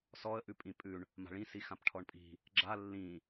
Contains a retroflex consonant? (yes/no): yes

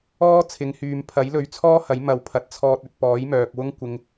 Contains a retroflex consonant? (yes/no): no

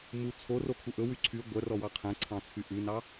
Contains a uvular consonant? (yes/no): yes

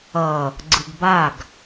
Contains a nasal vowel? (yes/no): no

